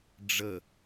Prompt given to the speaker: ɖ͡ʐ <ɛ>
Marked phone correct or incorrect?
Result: incorrect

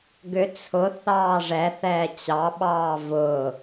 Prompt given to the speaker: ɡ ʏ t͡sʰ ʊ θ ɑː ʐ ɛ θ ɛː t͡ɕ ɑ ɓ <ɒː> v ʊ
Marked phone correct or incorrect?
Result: incorrect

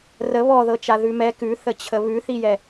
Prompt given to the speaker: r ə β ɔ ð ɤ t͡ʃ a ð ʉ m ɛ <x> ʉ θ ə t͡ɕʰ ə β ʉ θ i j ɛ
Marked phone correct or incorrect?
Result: incorrect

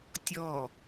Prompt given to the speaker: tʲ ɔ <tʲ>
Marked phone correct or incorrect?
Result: incorrect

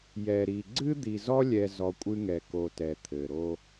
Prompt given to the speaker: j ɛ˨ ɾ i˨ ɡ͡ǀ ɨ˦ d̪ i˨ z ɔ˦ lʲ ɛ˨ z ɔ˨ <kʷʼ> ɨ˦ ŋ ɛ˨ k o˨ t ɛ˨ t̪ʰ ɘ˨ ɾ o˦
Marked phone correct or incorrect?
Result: correct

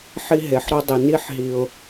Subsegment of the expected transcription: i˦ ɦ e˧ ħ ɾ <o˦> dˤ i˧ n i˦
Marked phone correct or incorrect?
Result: correct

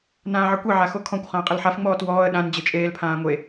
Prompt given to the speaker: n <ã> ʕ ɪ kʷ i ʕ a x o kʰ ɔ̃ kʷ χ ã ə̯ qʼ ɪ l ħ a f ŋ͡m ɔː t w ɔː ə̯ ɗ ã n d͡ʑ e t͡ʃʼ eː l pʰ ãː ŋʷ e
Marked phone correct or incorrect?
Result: incorrect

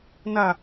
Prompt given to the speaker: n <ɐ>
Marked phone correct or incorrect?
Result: correct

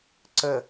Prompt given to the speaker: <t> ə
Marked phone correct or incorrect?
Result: incorrect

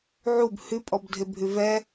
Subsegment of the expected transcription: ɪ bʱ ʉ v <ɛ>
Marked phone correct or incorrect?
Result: correct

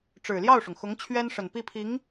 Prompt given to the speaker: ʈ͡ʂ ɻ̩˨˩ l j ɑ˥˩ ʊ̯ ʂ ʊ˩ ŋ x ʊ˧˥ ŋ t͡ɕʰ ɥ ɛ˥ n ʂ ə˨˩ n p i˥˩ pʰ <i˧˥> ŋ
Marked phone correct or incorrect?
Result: correct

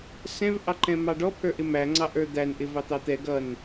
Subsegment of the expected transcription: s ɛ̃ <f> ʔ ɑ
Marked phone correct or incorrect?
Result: incorrect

